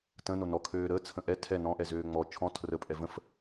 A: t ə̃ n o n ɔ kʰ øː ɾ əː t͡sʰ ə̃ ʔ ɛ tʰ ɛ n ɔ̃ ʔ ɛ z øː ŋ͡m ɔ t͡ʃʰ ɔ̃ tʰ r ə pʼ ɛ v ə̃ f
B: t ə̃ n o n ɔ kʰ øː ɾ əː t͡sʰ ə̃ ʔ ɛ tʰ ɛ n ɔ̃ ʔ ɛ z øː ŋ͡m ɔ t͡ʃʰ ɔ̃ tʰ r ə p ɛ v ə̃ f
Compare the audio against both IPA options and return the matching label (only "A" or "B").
A